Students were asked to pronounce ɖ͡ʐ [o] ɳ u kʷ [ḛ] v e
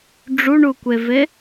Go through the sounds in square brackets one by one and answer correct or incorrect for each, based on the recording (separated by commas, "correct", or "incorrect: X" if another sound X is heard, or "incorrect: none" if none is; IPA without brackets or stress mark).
incorrect: u, incorrect: e